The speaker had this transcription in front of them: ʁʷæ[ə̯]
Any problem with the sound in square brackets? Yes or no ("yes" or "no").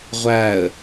no